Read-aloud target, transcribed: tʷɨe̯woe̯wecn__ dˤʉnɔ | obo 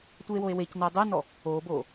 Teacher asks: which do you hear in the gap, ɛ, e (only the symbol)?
ɛ